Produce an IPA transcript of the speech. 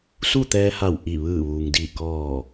s u˥˨ t̪ ɛː˧ h a˧˩ w ʔ i˧˩ ʋ ɯː˧˩ ʋ uː˩ ŋ d iː˧˩ k ɔː˧˩

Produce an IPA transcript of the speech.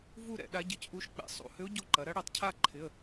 v u˥˧ ɾ ɛ̰˧˩˧ ɗ a˧˥ ɟ ɪ˧˥ c ʔ u˧˥ ʃ k͡p ɛ̰˩˧ sˤ ṵ˩˧˩ h ʏ˧˥ ʊ̯ ɟ o˧˥ ǃ ɐ˩˧ ɾ ɐ˧˥ ɽ ɛ˩˧˩ tˤ cʰ a˥˧ ǃʰ ɪ˩˧˩ ə̯

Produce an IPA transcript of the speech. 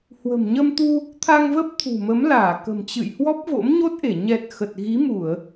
h w ə̤˨˩ m ɲ ə˧ m t̪ u˧ | t̪ʰ a˧ ŋ v ə˦˥ p̚ t̪ʰ ṳ˨˩ m ə˨˦ m l aː˧˩ k ə̤˨˩ m t͡ɕ ɨ̰˧˨ j h w ɔ˦˥ p̚ v o̰˧˥ m ɲ o˦˥ t̚ ʔ e˧˩ ɲ ɛ˨˩ t̚ x ə˨˩ t̚ ɣ i˨˦ m u˧˩˨ ə̯

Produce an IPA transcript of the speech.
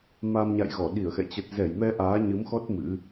m a˧ m ɲ a̰˧˨ j ɣ ɔ˧˩ ɗ i˧˩ ə̯ x ɛ̰˧˨ t͡ɕ ə˨˩ t̚ z ɛ˧˩ j m ɛ˧ ʔ aː˨˦ ɲ ɨ˨˦ m x ɔ˦˥ t̚ m ɨ̰˧˥

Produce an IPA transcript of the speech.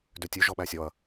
d ø tʲ ʉ ʒ ɔ ɓ æ sʲ ɔ ɐ̯

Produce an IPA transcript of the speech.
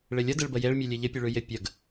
ɭ ɪ lʲ ə d ɪ ɭ b ə j e ɭ mʲ ʉ lʲ e ʎ ɪ pʲ ʉ ɭ ʉ j ɪ pʲ ə ɡ

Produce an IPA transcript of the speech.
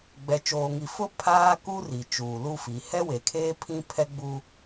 ɡ͡b ɛ˨ t͡ʃ oː˨ ŋ i˨ f ʊ˦ pʰ aː˦ k u˦ r i˨ t͡ʃ uː˨ l u˦ f i˨˦ h ɛ˦ w e˨ kʰ eː˦ pʰ ĩ˦ pʰ ɛ˦ ɡ͡b u˦

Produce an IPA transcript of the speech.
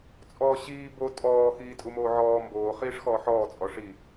t͡sʼ ɔː ɕ iː b o tʼ ɔː x iː tʼ u m oː ʕ ɔː m b oː χ iː ʂ x ɔː ħ ɔː t͡sʼ ɔ ʂ i

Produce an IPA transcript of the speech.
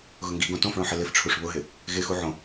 ɣ ʊ ŋ ɡ i ɡ õ t õ f ɭ õ ħ ɪ l ɪ f ʈ͡ʂʰ u ʂ β ʊ ɦ ɪ | ɣ ɪ x u ʕ õ

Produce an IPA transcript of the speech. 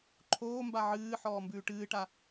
ǃʰ oː m b a ʕ ɨː ħ ɔː m b ʉː ʈ ɨː ʈ a

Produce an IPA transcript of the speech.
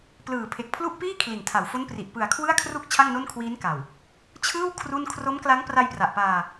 p l ɯː˨˩ pʰ e˨˩ k̚ pʰ l u˥˩ ʔ p iː˥˩ kʰ l i˨˩ n tʰ a˨˩ w f o˦˥ n p r i˨˩ ʔ p ɯ˨˩ a̯ kʰ w ɯ˥˩ a̯ kʰ r u˥˩ k̚ t͡ɕʰ a˥˩ ŋ n o˥˩ n kʰ w iː˦˥ n k a˨˩ w | t͡ɕʰ ɯː˥˩ w kʰ r u˥˩ n kʰ r o˦˥ m k l a˦˥ ŋ p r a˧ j p r a˨˩ ʔ p aː˧

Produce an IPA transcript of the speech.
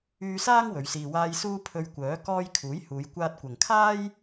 yː˧ s aː˥ ŋ w ɵ˨˧ ɥ s iː˧ w aː˥ j s uː˥ pʰ ɵ˧ ɥ kʷ œː˨˥ k ɔː˥ j kʰ uː˨˥ j h uː˨˧ j kʷ aː˧ t̚ kʷ ɐ˨ ŋ kʰ aː˥ j

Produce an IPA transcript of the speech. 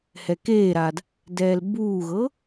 h ɛ k eː ɾ a d | d ɛː l b uː ɣ ɤ

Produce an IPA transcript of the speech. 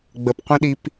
ɡ͡b ə p qʷ ĩ ɗ i p

